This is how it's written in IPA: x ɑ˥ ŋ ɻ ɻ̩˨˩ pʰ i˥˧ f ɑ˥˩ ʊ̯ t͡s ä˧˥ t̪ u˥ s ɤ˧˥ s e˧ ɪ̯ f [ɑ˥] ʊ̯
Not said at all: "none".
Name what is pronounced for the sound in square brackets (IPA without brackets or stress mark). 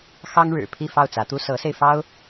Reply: ɑ˥